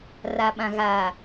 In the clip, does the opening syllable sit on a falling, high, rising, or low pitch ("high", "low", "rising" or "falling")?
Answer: low